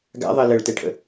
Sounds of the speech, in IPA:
ɡa̰ðˤɜ ləɭtɛʈʰə̰

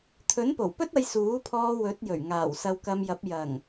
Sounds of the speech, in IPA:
t̪ʰɵ˨˥npo˨˩wpɵ˥t̚ ɐ˧jsuː˨˥pʰɔː˧ wɵ˨˥t̚jɵ˨˩ɥ ŋaː˨˩wsɐ˧wkɐ˧mjɐ˨˥p̚ jɐ˨˩ŋ

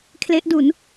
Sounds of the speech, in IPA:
kʰle˦˥ʔdu˩˦n

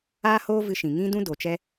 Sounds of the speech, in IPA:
aː˦hoː˦ vɨ˧ʃĩ˨ŋĩ˦dũ˦ do˨t͡ʃɛ˦

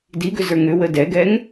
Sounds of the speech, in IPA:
diɡʏzə˞ ŋʏwə dɛɡɛŋ

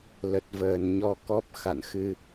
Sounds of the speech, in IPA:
lə˨˩t̚vəː˧˩nɲɔ˧kɔ˦˥p̚ xa̰˧˨nxɨ˧

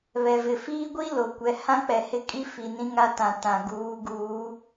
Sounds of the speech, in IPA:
βɛ˨vɪ˨ fiː˦ɡʷi˦ lo˨kʷɛ˨˦ hã˦k͡pɛ˨ hɪ˦˨kʼi˦ fi˨nĩ˦ŋa˦tã˨ tã˨ɡuː˨˦ ɡuː˨˦

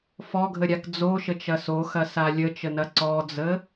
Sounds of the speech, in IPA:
fɔɡʱəɾʲak d͡zoʃət͡ʃɐ soxɐsa lʲət͡ʃənɐ ǀɔd͡zə

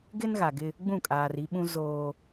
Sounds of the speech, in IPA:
ɡɪ˦nɣa˨ɡɪ˦ | ɡ͡bũ˦˨kʼaː˨ri˦ɓũ˦ zoː˦

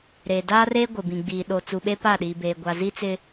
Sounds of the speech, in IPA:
ɾeː˨ daː˦reː˦ ɡʷɪ˨bĩ˨ɡ͡biː˨ ɗo˨ t͡su˨ɓe˦ pa˦˨ɗiː˨beː˨ ɡʷa˨zi˦t͡sɪ˦

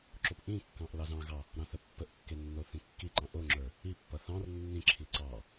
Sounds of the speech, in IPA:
ǁopʔĩkːɑ̃ʔ lɑzɑ̃ɣɑ | ɾɑ̃θəpːəʔkːe nːoθĩkːiǃɑ̃ ʔoŋ͡ǁə˞ | ipːʌ θɑ̃r nːĩǁʰi ǀɑ

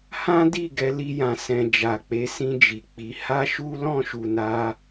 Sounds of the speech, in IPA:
hã˦di˦˨ ɡɛ˧ li˦jã˧ sɛ̃˧ d͡ʒa˨k͡pe˨˦sĩ˧ d͡ʒi˨k͡pi˨˦ ha˦ʃu˦ lɔ̃˦˨ʃu˨na˧

